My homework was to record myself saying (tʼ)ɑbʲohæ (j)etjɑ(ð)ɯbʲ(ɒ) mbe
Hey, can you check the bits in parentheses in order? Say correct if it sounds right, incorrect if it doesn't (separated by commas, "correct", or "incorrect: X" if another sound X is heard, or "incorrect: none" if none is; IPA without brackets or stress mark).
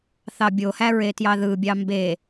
incorrect: θ, incorrect: ɹ, correct, incorrect: ɑ